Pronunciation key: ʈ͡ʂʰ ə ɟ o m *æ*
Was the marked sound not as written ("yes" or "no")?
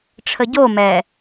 yes